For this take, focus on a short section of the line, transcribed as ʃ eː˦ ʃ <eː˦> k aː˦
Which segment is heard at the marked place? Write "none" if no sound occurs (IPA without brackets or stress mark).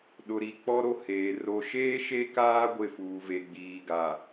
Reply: e˦